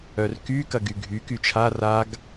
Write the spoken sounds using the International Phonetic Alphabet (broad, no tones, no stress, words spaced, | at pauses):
œrky kɐɡyɡʱy kyt͡ʃʰa raɡ